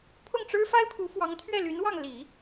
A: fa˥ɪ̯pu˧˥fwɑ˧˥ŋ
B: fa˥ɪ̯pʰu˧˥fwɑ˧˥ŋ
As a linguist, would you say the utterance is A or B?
B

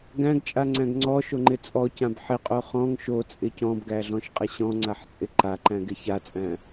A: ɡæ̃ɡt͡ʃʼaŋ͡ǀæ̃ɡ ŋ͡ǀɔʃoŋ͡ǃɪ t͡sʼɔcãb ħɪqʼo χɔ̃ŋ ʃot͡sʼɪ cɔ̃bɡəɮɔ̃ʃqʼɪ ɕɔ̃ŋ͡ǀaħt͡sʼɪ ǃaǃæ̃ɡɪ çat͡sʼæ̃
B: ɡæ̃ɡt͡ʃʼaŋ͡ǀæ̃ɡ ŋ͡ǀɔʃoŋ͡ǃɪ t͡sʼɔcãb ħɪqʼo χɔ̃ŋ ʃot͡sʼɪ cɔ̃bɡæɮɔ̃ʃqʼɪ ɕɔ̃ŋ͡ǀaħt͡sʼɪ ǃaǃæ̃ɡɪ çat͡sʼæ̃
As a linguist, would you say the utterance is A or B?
B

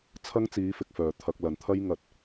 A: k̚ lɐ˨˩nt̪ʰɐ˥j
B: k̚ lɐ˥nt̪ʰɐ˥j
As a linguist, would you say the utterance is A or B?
A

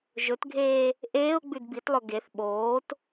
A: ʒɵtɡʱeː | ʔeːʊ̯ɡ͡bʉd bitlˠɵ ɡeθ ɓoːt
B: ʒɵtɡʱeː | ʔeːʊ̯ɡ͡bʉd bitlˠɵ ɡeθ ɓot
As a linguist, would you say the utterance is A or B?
A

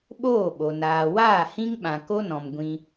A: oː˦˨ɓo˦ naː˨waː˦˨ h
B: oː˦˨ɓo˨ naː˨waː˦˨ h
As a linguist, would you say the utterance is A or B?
B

